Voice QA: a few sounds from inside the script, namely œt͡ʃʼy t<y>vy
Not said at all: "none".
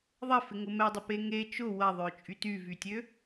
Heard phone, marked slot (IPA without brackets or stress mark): y